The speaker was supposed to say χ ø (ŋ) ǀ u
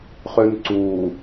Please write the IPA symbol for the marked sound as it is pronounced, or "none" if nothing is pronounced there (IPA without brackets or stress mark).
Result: n